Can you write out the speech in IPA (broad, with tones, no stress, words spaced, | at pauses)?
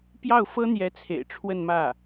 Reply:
pjɑ˥˩ʊ̯fɤ˥n̪jɛ˧˥ t͡sʰḛ˨˩ɪ̯ʈ͡ʂʰwə˥˧nmä˥˩